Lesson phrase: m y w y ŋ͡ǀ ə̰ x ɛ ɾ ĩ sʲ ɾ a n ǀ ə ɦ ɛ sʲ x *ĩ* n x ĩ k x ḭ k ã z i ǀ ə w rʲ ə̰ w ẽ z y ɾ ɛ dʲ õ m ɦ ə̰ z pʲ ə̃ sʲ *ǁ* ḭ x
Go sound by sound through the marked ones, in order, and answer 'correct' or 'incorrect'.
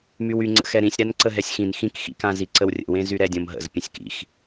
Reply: correct, incorrect

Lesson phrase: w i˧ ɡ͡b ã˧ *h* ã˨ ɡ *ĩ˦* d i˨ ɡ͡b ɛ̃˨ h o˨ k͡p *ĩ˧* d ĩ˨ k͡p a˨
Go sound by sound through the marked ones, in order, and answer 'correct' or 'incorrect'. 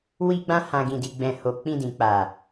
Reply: correct, incorrect, correct

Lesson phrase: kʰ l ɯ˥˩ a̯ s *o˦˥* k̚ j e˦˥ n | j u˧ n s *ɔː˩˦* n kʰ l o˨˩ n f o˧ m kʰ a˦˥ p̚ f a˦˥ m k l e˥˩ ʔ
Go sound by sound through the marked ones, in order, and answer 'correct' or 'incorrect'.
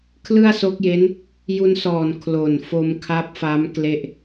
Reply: correct, incorrect

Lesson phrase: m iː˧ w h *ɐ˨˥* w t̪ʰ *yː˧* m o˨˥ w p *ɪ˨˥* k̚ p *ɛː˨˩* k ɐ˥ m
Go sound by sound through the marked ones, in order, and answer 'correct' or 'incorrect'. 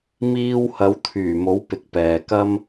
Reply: correct, incorrect, incorrect, incorrect

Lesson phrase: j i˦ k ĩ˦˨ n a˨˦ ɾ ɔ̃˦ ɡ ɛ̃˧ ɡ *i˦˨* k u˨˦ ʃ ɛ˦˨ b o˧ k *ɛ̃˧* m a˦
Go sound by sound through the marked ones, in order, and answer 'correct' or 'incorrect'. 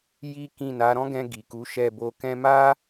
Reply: incorrect, correct

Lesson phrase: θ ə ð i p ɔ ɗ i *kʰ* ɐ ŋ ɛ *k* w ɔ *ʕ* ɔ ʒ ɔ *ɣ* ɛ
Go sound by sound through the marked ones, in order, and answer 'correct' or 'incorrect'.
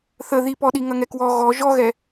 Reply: incorrect, correct, incorrect, correct

